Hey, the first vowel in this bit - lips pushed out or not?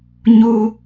yes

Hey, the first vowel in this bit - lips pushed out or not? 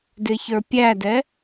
no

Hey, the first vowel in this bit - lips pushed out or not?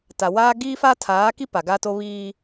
no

